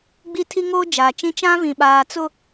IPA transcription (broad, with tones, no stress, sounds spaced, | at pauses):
ɡ͡b i˦ tʰ i˦ ŋ oː˦ d͡ʒ aː˨ t͡ʃ ĩ˦ t͡ʃ ã˦ v ĩ˨ ɓ aː˨ t͡s ʊ˦˨